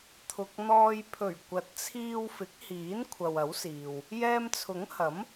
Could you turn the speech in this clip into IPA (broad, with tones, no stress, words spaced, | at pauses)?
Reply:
t̪ʰʊ˨k̚n̪ɔː˧j pʰɵ˨˩ɥ kʷɐ˨˥t̚t͡sʰiː˧wfɪ˨˥k̚hiː˨˥n kʷʰɐ˨wɐ˨˥wsiː˨w | jɛː˧mt͡sʰʊ˨˥ŋhɐ˨˥m